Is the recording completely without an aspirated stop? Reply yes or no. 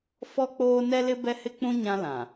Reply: yes